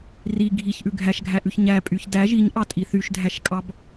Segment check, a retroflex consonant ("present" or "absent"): absent